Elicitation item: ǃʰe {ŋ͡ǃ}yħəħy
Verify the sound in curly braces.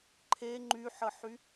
correct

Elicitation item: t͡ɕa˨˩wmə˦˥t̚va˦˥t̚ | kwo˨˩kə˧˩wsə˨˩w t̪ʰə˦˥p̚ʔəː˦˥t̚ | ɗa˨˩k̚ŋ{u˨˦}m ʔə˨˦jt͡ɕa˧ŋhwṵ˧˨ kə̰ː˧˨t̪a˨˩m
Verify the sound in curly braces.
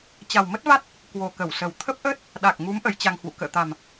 correct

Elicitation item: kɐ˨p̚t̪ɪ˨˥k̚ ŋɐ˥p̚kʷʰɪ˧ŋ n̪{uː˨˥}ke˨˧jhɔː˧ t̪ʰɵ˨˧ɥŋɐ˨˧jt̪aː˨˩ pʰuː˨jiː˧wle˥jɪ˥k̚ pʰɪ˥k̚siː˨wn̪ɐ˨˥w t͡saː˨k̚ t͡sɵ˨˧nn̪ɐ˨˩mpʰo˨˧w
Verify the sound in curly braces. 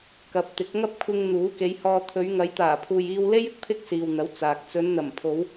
correct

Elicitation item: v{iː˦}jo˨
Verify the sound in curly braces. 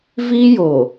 correct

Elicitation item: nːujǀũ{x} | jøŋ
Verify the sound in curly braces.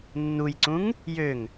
incorrect: ŋ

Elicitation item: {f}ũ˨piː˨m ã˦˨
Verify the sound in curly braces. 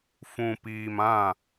correct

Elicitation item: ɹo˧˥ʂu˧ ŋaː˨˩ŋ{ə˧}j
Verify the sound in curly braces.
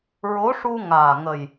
incorrect: ə˨˩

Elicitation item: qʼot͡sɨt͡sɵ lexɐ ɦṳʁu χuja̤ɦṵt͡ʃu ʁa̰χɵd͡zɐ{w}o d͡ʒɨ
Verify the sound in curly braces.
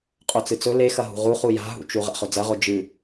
incorrect: ʁ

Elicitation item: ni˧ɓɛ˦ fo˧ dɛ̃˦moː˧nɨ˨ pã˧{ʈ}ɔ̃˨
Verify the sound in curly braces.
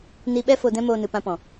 incorrect: p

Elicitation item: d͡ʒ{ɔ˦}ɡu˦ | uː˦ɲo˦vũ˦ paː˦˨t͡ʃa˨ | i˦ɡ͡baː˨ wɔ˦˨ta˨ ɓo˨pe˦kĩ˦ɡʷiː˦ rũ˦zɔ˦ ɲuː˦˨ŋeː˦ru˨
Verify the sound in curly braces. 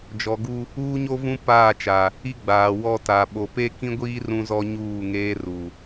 incorrect: ɔ˨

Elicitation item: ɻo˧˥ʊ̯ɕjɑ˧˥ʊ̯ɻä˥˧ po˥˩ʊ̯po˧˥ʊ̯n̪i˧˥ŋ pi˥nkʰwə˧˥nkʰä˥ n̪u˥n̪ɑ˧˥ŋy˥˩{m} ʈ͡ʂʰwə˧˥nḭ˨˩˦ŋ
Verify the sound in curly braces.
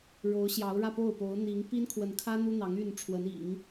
incorrect: n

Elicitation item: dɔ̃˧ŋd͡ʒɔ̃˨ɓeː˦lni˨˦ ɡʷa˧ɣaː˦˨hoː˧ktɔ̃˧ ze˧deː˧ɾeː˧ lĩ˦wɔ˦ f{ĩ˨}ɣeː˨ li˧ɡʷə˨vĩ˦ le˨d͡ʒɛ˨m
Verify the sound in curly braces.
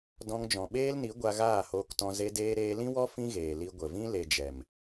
incorrect: ĩ˦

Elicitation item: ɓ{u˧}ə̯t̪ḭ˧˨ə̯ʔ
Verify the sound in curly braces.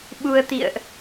correct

